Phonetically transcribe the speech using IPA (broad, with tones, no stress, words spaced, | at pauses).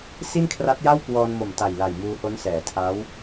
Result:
si˥˩nkʰra˦˥t̚ja˥˩wkwɔː˧n mo˨˩mta˨˩j la˨˩jmuː˧ ho˦˥nsɛː˩˦tʰa˦˥w